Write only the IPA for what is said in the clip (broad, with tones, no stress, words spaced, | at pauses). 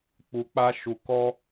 k͡pu˧k͡pa˦ʃu˧kɔ˦